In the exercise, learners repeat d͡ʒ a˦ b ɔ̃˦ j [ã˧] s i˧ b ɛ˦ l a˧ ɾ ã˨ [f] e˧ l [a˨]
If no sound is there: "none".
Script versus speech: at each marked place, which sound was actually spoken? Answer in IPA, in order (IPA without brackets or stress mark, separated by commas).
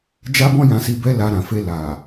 ã˧, f, a˨